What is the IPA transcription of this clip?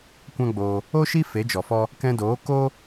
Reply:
kʷ ã˦ ɡ͡b oː˧ | o˦ ʃ i˦ f e˨˦ d͡ʒ ɔ˨ f ɔ˦ | k ɛ̃˧ d oː˨˦ k o˦

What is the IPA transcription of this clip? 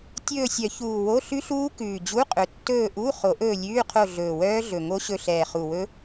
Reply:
tʲ ɵː˦˨ sʲ œ˨˩˦ ç uː˨˩ w o˧˥˧ ɬ ʉ˦˥ ɬ uː˦˥ k ʉː˨˩ d͡ʑ u˧˥˧ qʼ ɵ˨˩ tː ɵː˦˨ ʔ u˧˥˧ χ o˨˩˦ ʔ ɵː˦˨ lʲ ʉː˧˥˧ qʰ o˦˨ ɮ ɵː˨˩ w œː˦˥ ɮ ɵ˨˩ ŋ o˦˥ ɕ ɵ˦˨ ɬ ɛː˨˩ χ u˨˩ w ɵ˦˥

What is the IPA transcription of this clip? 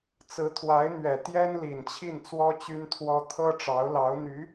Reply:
t͡s ɹ̩˧˥ t̪ʰ w a˧˥ ɪ̯ n̪ ɥ ɛ˨˩ t̪ j ɛ˥ n l i˨˩ n t͡ɕʰ i˥˩ n t͡s w ɔ˥ t͡ɕ y˥ n t̪ʰ w ɔ˥ t̪ʰ ɤ˥ ʈ͡ʂ ɑ˧˥ ʊ̯ l ɑ˧˥ ʊ̯ n̪ y˧˥

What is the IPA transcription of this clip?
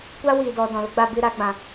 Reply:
kʷ a˦ w i˨ d ɔ˨ d ɔ̃˨ l ə˦ ɡ͡b a˧ b ɨ˦˨ ɾ a˧ ɡ͡b ã˨

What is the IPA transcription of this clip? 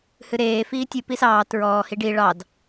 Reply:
h ɨ ɾ eː f iː tʲ ɨ p i s ɑː t ɹ ɔː h i ɖ i ɭ ɑ d

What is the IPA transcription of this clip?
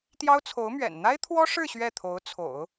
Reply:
t̪ j ɑ˥ ʊ̯ t͡sʰ o˧˥ ʊ̯ m ɥ ɛ̰˨˩ n n̪ a˥ ɪ̯ t̪ʰ w ɔ˥ ʂ ɻ̩˥˧ ɕ ɥ ɛ˥˩ t̪ʰ o˧˥ ʊ̯ t͡sʰ o̰˨˩˦ ʊ̯

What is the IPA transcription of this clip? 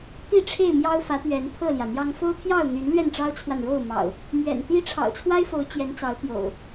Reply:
t̪ i˥˨ ʈ͡ʂʰ e˥˨ ɪ̯ m j ɑ˦ ʊ̯ f ä˨˦ t̪ ɥ ɛ˨˦ n pʰ ɤ˥˨ l j ä˩ n̪ j ɑ˦ ŋ f o˦ ʊ̯ t̪ʰ j ɑ˥˨ ʊ̯ n̪ y˨˦ n l ɥ ɛ˥˨ n ʈ͡ʂ ɑ˦ ʊ̯ t͡sʰ w a˨ n ɻ o˥˨ ʊ̯ m ɑ̰˨˩ ʊ̯ | m ɥ ɛ̰˨˩ n t̪ i˦ ʈ͡ʂʰ ɑ̰˨˩ ʊ̯ t͡sʰ w a˦ ɪ̯ f o˨˦ ʊ̯ t͡ɕ j ɛ˨˦ n t͡s ɑ˨˦ ʊ̯ t̪ j o̰˨˩ ʊ̯

